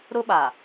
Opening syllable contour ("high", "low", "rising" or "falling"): high